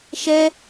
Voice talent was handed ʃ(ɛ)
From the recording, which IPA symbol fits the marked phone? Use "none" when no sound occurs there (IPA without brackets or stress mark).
ɛ